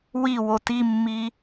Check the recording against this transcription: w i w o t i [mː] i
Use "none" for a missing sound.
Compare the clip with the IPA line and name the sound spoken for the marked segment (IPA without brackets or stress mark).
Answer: mː